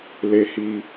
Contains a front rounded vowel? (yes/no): no